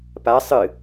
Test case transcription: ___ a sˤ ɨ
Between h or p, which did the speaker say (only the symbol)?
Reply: p